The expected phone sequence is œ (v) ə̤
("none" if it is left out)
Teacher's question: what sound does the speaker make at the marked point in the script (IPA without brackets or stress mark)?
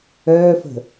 f